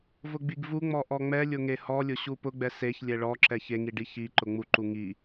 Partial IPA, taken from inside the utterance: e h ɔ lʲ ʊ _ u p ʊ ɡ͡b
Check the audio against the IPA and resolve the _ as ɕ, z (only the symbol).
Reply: ɕ